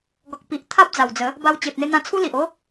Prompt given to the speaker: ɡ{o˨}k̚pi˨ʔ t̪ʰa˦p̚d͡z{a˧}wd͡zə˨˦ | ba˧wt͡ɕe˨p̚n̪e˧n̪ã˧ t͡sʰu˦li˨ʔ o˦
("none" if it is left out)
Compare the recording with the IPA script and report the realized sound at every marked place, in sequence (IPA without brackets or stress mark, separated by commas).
ɔ˨, a˨˩